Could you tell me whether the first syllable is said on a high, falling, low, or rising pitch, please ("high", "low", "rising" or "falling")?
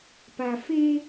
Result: low